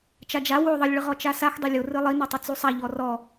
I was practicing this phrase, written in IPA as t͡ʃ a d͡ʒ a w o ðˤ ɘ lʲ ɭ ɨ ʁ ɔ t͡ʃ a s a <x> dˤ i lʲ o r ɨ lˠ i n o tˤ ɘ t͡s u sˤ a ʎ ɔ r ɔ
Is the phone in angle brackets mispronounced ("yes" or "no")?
no